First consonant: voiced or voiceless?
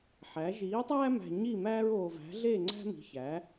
voiceless